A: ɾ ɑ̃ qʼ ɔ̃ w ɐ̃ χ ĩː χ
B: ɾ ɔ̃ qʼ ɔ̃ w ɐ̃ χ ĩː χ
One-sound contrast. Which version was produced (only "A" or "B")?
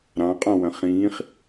A